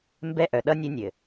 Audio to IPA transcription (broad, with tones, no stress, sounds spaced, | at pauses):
m b ɛ˦ ʔ œ˨ ɗ ʌ˦ nʲ ø˦ nʲ ɘ˨